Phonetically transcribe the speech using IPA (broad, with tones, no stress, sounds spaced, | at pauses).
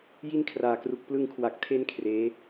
j i˥˩ n kʰ r aː˨˩ k r u˨˩ k̚ p l ɯ˧ ŋ kʰ w a˨˩ k̚ tʰ e˧ n kʰ r eː˦˥